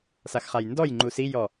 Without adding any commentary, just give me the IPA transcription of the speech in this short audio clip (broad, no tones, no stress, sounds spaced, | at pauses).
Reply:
s a x χ a j n d ɔ j ŋ͡ǃ u s i j ɔ